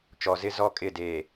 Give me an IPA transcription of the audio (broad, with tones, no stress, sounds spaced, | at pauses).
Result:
t͡ʃ ɔ˨ z ɪ˦ z ɔ˦ kʼ ɪ˦˨ d eː˨